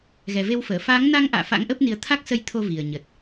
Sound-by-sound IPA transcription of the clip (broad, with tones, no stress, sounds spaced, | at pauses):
ɣ ɛ˨˩ v e˧ w f əː˧˩ f aː˨˦ ŋ n a˧ ŋ ʔ a̰ː˧˨ f a̰˧˥ ŋ ʔ ə˦˥ p̚ n i˨˦ ə̯ t̪ʰ a˦˥ k̚ s ə˧ j t̪ʰ o˧ v i˨˩ ə̯ ɲ ə˨˩ t̚